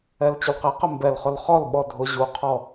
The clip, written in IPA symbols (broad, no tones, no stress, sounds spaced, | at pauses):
ɛ l t͡ɕ ʊ l q e q ɪ m b ɛ l χ ʊ l χ ɔ l ɓ ɔ dʱ ʊ ʑ u qʰ ɔ